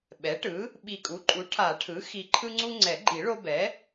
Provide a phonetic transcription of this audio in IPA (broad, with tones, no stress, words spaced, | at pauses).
ɓɛ˩˥ʈɯ˩˥ | ɓi˨˩kʼu˩˥ǃʼu˩˥ ʈʰa˨˩˦ʈʰɯ˩˥ xi˨˩ǃʰɯ˦ŋ͡ǀu˦ ŋ͡ǀɛ˨˩˦ɡ͡ǃi˨˩˦ɭo˦bɛ˩˥